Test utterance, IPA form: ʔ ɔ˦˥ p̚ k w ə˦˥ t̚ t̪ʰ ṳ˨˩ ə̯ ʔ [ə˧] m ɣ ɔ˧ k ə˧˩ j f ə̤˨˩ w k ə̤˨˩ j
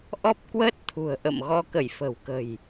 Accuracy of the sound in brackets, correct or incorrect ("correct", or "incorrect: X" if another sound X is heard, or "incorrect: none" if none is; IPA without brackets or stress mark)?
incorrect: ə̰˧˨